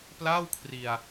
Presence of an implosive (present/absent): absent